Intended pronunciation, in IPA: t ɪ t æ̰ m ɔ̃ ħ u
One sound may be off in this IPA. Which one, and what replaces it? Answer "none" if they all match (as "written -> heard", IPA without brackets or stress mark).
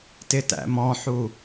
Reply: none